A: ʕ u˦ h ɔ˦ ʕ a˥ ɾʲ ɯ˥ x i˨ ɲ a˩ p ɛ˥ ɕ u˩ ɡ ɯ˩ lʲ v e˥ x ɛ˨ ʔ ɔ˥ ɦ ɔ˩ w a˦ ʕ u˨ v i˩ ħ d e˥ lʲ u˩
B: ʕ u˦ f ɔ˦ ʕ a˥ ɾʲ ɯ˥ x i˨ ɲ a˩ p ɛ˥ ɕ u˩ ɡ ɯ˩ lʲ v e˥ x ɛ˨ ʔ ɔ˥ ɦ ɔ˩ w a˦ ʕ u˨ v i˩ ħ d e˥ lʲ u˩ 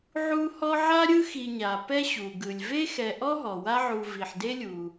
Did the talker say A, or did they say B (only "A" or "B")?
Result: A